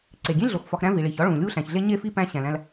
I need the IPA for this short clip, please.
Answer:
ǀ e˩ ɡʲ ẽ˥ ɮ o˨ x f ɒ˨ x ɾ æ̃˦ v i˩ ɭ i˩ ç ɒ˦ ɭ ũ˩ lʲ u˦ ɬ æ̃˩ ç ɮ e˥ ɲ e˥ f i˥ p æ̃˦ ɕ æ̃˨ l æ̃˦ l

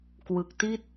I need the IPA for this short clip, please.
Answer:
k w ɯ˨˩ k̚ t i˥˩ t̚

